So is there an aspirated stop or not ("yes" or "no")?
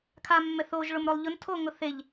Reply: yes